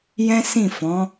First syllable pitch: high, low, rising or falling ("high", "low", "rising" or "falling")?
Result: high